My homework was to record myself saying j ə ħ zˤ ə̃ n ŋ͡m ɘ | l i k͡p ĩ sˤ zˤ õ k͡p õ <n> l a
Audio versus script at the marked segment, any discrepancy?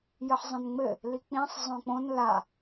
no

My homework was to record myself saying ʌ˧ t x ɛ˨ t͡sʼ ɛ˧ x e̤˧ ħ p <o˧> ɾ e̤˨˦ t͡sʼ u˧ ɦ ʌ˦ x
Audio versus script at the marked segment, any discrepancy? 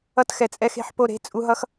no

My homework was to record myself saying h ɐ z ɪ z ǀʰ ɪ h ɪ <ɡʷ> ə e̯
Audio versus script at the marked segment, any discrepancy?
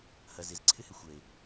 yes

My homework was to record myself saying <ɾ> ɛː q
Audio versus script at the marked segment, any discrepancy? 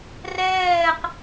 yes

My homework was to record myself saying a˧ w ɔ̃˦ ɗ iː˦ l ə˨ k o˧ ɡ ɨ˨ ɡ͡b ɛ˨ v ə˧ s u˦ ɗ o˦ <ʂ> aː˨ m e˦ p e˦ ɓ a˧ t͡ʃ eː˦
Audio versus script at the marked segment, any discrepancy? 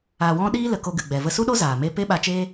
yes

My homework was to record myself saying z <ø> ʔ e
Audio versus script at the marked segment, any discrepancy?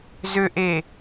no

